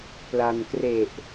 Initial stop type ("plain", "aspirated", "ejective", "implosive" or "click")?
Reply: plain